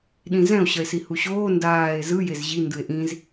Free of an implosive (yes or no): no